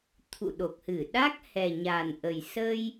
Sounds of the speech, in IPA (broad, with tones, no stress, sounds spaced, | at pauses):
t̪ʰ ṵ˧˨ ɗ o˨˩ k̚ h ɨ˧˩ ɗ a˦˥ k̚ h ɛ˨˩ ɲ a˨˩ n ʔ ə˨˩ j s ə˧ j